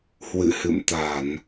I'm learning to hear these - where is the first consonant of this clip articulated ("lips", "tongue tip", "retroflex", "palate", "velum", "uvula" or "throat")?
throat